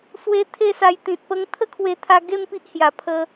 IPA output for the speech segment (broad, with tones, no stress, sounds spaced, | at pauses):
s w e˧ t̪ʰ e˥˧ s a˧ j t̪ ĩ˨ t̚ p ə˧ ŋ t̪ʰ ə˦ kʰ w e˧ t̪ʰ a˧ ɡ e˥˧ m p i˦ ʔ h j a˨˩ pʰ ə˧